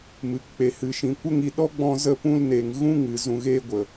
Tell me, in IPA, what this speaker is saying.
m ɨ˨˦ k k͡p e˧ h ɨ˧ ʃ ĩ˧ kʷ ə˦ ŋ i˧ ɗ ɔ˦ ɡ͡b ɔ̃˧ z ə˦ p ũ˦ l n e˧ ŋ ɣ ũ˦ ŋ ɨ˨ z ũ˧ ɣ eː˦ ɡʷ ə˨

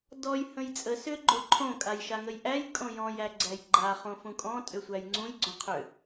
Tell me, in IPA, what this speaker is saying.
d ɔ j h ə̃ j t͡sʼ ə s ʏ ɡ͡ǃ o ǃʰ õ kʼ a j ʃ a ŋ ə j ʔ æ j kʼ õ j ɔ̃ j æ ɡ͡ǀ æ j ɡ͡ǃ a χ õ f ũ kʼ ɔ̃ tʼ ʏ sʷ æ j ŋ͡ǀ ũ j ɡ͡ǀ õ qʰ ʏ

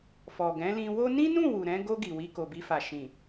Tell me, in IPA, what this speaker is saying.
f ɔ˨ ɡ ɛ̃˨˦ l ĩ˧ w o˦ n ĩ˦ n ũ˦˨ w u˨ ɾ ɛ̃˨˦ ɡ o˧ ɡ i˨ w i˧ k o˨ b i˧ f a˨ ʃ ĩ˨

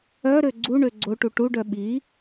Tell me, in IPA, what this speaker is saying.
œ ɾ ø ɡ͡ǀ u ɳ ø ɡ͡ǀ o ʈ u ʈ u ɖ œ ɓ i

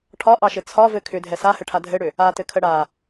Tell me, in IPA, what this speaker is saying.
ʈʰ ɒ ʔ ɑ ʃ ɘ t͡sʰ ɒ v ɘ kʰ ʏ dʱ ɛ s a h ɘ ʈʰ a dʱ ɘ ɽ ʏ | a t ɘ kʰ ə ɽ a

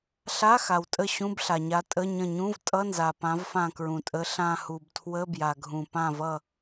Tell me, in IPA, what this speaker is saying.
ɬ a˧˥˧ x a˩ w tʼ ə˧˩ ɕ ũ˧˥˧ b ɬ a˩ ɲ a˨˦ tʼ ə˧˥˧ ɲ ə̃˧˩ ɲ ũ˧˥˧ v tʼ ʌ˧˥˧ n z a˩ p ã˨˦ v f ã˧˩ k ɹ ũ˩ tʼ ə˨˦ ɬ ã˧˩ h u˩ b tʰ w ə˧˥˧ b j a˩ ɡʱ ũ˩ p ã˧˩ v ʌ˧˩

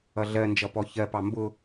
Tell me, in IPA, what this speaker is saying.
ʌ ɮ ɜ n d͡ʒ ʌ p ɔ ç ɜ p ɑ m b ʊ

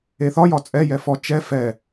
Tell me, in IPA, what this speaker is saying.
e θ ɒ j ɒ t͡sʼ ɛ j ɛ f ɔ t͡ʃ ɛ f ɛ

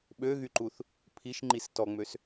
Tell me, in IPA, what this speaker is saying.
ɓ ø ɣ y ǃ u θ | pʰ i ʃ ŋ͡ǃ i s t ɔ ŋ͡m ø s

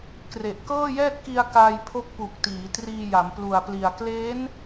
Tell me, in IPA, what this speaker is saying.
k r e˨˩ ʔ k ɤː˥˩ j ɛː˥˩ t̚ k i˧ a̯ k aː˧ j pʰ o˦˥ k̚ p u˨˩ k̚ t iː˩˦ t r iː˧ j a˩˦ m p l u˨˩ a̯ p l i˨˩ a̯ k l eː˦˥ n

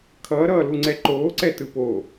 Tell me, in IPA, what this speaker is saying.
kʰ ʌː ɾ ʌː l u ŋ͡ǀ ɛ ǃ oː ǀ ɛ t ɯ p o

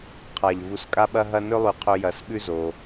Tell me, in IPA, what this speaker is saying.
qʰ a˨ ʎ v u˧ s kʼ a˦ ɓ ɐ˦ ɦ ɐ˦ n ɵ˦ lˠ ʉ˧ qʰ ɵ˧ j ɐ˧ s ɓ ʉ˦ z o˧

